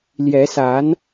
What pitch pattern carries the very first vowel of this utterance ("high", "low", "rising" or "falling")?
rising